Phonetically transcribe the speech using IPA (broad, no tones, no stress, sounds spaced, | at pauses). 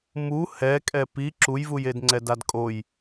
m u h ɛ kʼ ɛ p i ǁ u j v u j e d ŋ͡ǀ ɛ d a d kʼ o j